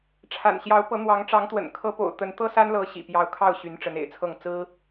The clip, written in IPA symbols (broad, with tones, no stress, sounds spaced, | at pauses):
ʈ͡ʂʰ a̰˨˩ n ɕ j ɑ˧˥ ʊ̯ p ɤ˧˥ n̪ w ɑ˧˥ ŋ ʈ͡ʂ ɑ˧˥ ŋ t̪ w ə̰˨˩ n kʰ ɤ˧˥ p o̰˨˩ ʊ̯ t̪ ə˧˥ n t̪ ɤ˥ s a˥ n l ɤ˧˥ ɕ ḭ˨˩ p j ɑ˧˥ ʊ̯ kʰ ɑ˥˩ ʊ̯ ɕ y˧˥ n ʈ͡ʂ ə˧˥ n ḛ˨˩ ɪ̯ t͡sʰ ɤ˥˩ ŋ t͡s ɹ̩˥